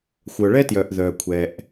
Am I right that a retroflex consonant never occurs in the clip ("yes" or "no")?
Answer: no